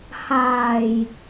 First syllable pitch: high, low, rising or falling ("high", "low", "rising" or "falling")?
low